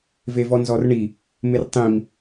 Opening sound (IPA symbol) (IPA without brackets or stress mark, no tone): v